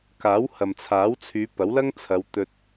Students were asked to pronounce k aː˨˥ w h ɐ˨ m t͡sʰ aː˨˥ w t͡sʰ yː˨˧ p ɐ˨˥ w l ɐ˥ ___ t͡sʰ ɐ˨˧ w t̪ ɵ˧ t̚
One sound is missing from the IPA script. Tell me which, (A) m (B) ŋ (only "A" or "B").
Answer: B